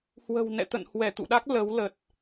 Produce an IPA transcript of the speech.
h w ə̤˨˩ w n ɛ̰˧˨ t̪ ə̰˧˨ n h w ɛ˧˩ t̪ ṵ˧˨ ɗ a˦˥ k̚ l ə˨˦ w l ə˨˩ t̚

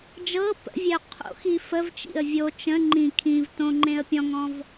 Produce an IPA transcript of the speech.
d͡ʒ ɤ p ə̰ vʲ ɛ ʊ̯ qʰ o̰ x i f ə v t͡ʃ ḭ ə̯ vʲ o t͡ʃ ə̃ ŋ͡ǃ ĩ kʰ ĩ v t õ ŋ͡ǃ ẽ ə̯ pʲ ɔ̃ ŋ ɔ̃ v

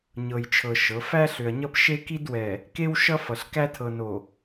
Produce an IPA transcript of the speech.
ɲ ɤ˨ j t͡ʃʰ ɤ˨ ʃ ɤ˨˦ f æ˦ ɬ ʏ˨ ɐ̯ ɲ ʌ˦ p ʃ e˦ k i˦ d w ɛ˨ | k e˦ w ʃ ʌ˦ f ʌ˨ ɬ k æ˦ tʰ ɤ˨ n o˨

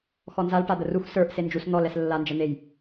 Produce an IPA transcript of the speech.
x ɔ n z a l ʈ a d̪ ə r u x s ə˞ ʔ s e n d͡ʒ u s n̪ ɔ l ɛ s lː a n d͡ʒ ə n̪ e j

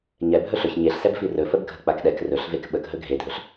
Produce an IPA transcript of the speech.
ɲ ɛ bʱ ɵ ɬ ɵ ç ɲ e ɬ s ɛ b f i r ɵ f ə b ɡʱ ə k͡p a k ɗ ɛ k r ɵ ɬ v e k ɓ ə k ɦ ɵ ɡʱ e dʱ ɵ ɬ

